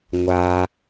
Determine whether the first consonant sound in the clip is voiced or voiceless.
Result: voiced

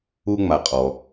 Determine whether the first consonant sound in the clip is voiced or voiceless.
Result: voiced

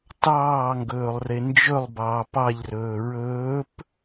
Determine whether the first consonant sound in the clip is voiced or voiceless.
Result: voiceless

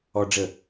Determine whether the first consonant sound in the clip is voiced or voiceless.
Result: voiced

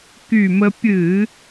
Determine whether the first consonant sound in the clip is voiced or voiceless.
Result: voiceless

